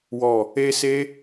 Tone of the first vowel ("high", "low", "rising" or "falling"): low